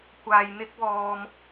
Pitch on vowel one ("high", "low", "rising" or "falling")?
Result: low